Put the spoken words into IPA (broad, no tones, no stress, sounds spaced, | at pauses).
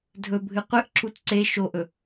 dʱ ɵ bʱ ɨ qʷ ɨ ʔ ǁ u t ǀ e ʃ o ʔ ɵ